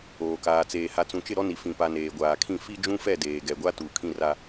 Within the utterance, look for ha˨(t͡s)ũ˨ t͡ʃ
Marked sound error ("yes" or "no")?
no